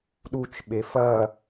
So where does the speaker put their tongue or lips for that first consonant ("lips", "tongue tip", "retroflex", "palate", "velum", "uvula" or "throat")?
tongue tip